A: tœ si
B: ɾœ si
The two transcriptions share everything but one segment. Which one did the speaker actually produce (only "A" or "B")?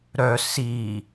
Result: B